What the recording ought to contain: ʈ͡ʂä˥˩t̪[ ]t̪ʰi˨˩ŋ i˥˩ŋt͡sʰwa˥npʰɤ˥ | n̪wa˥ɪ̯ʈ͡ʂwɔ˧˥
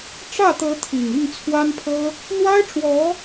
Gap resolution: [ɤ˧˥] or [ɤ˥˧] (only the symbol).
ɤ˧˥